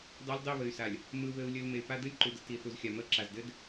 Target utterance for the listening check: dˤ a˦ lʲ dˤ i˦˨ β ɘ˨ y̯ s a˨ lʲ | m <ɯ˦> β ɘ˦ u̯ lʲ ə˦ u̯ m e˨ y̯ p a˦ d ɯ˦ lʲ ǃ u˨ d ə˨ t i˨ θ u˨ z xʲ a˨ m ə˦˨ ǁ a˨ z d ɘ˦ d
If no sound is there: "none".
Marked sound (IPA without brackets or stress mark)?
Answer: ɯ˦